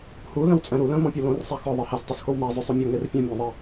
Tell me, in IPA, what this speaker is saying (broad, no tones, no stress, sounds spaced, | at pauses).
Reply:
h u l œ̃ w t͡sʼ æ̃ ɾ u l œ̃ m ɔ̃ pʲ o l õ r sˤ æ x ɔ ðˤ e h æ s tˤ u s x o w m æ zˤ ø sˤ u mʲ ɔ ŋ e r pʲ œ̃ mʲ æ̃ ðˤ e